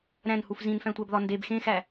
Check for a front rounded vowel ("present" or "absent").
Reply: absent